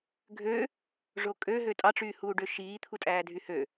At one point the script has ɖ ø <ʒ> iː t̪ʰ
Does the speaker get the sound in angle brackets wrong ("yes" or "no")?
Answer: yes